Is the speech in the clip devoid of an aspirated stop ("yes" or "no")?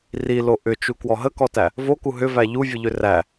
yes